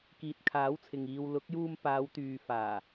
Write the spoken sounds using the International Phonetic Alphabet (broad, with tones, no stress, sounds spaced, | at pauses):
k iː˨ t̚ kʰ aː˨˥ w t͡sʰ ɪ˨ ŋ iː˨ w l ʊ˨˥ k̚ j uː˧ m p aː˨˧ w t̪ yː˨ f aː˨˩